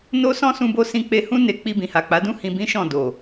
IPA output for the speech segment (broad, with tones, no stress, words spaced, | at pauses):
no˦ sɔ̃˦sũ˧bo˧sĩ˧ k͡pe˧hũ˦ ne˧ k͡pi˧bĩ˨ha˨k͡pa˨˦ dũ˦hĩ˧bĩ˦ʃɔ̃˦˨ do˨